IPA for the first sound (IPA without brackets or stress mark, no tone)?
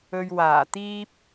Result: ɵ